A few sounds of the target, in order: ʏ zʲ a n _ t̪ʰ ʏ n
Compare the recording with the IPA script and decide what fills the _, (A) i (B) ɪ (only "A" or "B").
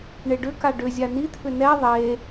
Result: A